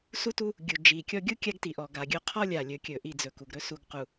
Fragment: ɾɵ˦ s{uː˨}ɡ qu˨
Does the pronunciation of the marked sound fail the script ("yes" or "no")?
yes